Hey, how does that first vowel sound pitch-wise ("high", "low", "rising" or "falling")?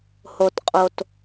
low